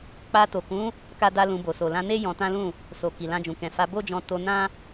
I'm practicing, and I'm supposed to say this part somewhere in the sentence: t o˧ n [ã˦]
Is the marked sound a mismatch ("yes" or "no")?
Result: no